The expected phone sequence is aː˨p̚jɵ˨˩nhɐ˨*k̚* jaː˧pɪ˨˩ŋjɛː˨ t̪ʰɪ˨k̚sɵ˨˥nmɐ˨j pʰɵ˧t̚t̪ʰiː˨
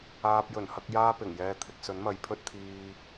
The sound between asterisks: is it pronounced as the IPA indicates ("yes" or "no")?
yes